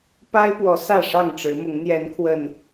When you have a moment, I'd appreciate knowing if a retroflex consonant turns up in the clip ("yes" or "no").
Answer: yes